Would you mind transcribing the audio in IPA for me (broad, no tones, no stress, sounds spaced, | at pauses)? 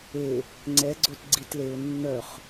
e | ŋ͡ǀ ɛ ɡ͡ǀ o t ɡ͡ǀ i t l e ʊ̯ nː œ χ